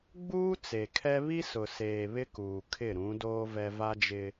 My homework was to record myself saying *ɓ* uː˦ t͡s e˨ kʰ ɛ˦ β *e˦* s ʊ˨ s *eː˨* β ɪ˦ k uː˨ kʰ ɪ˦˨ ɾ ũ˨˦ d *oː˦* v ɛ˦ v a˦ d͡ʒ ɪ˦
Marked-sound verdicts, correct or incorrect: incorrect: ɡ͡b, incorrect: i˦, correct, correct

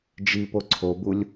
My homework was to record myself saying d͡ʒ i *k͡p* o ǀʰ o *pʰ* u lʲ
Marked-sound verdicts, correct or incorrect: incorrect: p, incorrect: b

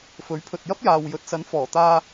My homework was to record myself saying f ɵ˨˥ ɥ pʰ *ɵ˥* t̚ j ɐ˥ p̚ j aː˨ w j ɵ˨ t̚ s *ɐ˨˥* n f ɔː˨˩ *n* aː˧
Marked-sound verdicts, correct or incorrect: incorrect: ɵ˨, correct, incorrect: t̪

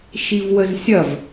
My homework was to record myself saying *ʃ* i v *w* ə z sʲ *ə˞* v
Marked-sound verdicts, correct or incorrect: correct, correct, incorrect: ɐ

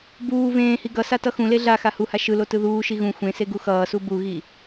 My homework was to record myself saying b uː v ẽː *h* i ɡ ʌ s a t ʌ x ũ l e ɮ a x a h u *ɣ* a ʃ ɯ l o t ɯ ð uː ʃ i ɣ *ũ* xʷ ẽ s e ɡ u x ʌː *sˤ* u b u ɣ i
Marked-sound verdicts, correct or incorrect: correct, incorrect: h, correct, incorrect: s

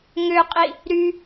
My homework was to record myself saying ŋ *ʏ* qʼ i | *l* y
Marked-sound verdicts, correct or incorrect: correct, incorrect: ɾ

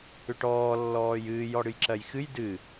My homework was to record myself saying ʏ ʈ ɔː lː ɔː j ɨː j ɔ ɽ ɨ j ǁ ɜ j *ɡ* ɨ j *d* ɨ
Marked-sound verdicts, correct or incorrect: incorrect: x, correct

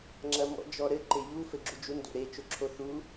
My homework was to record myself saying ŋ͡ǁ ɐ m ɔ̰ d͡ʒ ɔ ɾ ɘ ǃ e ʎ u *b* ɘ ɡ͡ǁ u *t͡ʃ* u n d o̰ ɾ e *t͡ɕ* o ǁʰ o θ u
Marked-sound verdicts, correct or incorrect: incorrect: f, incorrect: d͡ʒ, incorrect: t͡ʃ

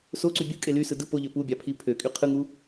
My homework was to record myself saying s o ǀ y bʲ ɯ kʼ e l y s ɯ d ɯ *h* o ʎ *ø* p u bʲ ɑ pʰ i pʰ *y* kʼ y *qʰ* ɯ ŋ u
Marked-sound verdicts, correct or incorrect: incorrect: p, correct, incorrect: ø, correct

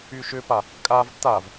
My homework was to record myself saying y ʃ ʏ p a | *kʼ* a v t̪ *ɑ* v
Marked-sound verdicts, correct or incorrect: correct, incorrect: a

